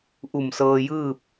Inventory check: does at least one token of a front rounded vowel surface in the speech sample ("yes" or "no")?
no